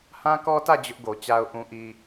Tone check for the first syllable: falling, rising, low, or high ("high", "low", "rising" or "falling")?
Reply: high